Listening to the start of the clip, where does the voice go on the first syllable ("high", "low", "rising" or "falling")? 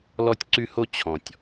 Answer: high